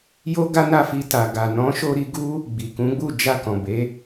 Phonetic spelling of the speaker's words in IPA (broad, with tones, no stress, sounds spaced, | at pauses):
j o˦ ɡ a˦ n a˦˨ f i˧ t a˨ ɡ a˨ n ɔ̃˨˦ ʃ o˧ ɾ i˧ ɡ u˦ | ɡ͡b i˨ k ũ˨˦ ɡ͡b u˦˨ d͡ʒ a˧ k ɔ̃˨ b e˨˦